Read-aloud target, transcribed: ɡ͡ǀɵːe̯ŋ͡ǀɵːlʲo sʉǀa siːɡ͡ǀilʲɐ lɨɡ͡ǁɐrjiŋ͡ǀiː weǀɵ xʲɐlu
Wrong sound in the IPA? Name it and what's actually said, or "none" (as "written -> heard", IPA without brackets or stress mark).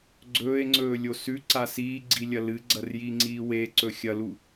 ɡ͡ǁ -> ɡ͡ǀ